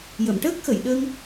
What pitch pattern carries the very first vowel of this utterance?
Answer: low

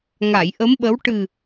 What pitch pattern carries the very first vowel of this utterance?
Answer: low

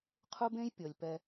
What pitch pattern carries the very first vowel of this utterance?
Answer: high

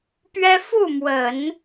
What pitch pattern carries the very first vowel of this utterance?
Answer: high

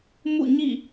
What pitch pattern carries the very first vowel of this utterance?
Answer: falling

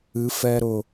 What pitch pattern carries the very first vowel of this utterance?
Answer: rising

